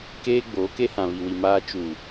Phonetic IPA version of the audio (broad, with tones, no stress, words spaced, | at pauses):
keː˦ ɡ͡boː˨˦ke˦ hã˨βi˨wi˨ maː˦ t͡ʃuː˨